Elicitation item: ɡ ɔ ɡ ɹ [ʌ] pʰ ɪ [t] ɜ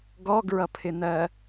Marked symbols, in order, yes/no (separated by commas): yes, no